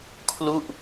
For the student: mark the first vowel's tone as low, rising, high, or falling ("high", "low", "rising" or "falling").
falling